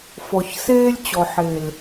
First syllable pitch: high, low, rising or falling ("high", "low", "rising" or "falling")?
low